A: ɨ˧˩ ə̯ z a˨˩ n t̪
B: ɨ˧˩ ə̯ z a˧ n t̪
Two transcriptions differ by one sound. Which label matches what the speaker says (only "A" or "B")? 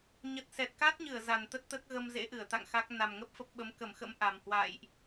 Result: A